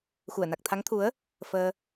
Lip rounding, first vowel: rounded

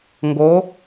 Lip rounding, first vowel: rounded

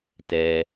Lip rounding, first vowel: unrounded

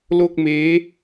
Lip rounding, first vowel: rounded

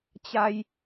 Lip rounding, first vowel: unrounded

